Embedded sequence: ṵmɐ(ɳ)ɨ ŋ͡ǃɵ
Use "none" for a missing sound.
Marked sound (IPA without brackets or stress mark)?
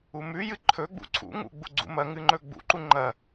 ŋ